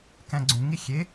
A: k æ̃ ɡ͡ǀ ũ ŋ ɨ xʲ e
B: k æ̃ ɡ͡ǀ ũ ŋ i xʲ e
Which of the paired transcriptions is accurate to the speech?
B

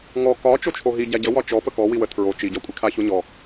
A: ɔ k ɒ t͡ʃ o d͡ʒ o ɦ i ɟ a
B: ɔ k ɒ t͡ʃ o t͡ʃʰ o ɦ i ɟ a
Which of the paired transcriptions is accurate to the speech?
B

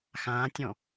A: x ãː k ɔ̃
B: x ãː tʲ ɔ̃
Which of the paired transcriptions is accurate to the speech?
B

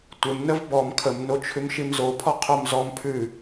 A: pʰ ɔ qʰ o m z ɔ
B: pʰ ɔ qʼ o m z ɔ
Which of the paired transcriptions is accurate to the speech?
A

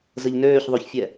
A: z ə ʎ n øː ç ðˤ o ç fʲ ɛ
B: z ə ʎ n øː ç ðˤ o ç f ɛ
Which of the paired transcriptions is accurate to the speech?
A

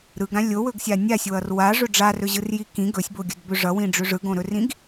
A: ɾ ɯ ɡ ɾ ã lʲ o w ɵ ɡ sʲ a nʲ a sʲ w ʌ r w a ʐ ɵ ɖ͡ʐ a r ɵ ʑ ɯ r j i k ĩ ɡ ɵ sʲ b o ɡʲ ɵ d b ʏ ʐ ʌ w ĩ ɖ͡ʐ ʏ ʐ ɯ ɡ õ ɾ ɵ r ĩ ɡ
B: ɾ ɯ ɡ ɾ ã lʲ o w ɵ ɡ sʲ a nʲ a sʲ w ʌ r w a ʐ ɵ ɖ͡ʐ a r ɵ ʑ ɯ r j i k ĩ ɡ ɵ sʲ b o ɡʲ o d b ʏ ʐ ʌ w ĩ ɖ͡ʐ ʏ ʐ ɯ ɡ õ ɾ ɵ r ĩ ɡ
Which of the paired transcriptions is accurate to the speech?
A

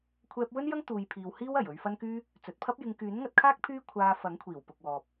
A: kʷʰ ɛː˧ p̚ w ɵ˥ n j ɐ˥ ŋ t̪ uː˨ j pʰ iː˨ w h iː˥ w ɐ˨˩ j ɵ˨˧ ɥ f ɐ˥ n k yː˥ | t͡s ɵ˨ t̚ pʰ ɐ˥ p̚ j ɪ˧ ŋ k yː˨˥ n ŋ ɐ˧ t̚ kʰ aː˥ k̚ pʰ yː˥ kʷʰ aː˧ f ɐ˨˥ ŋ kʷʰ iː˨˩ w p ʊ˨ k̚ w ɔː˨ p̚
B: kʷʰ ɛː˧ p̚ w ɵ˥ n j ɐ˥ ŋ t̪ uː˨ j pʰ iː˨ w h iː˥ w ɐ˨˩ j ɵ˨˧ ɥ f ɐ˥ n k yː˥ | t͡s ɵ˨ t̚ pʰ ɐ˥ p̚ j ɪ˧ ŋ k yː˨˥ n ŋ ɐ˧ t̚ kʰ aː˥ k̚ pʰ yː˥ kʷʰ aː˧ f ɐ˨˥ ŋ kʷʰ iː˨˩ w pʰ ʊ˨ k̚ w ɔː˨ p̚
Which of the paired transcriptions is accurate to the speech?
A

